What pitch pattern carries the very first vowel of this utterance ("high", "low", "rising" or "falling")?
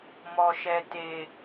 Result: low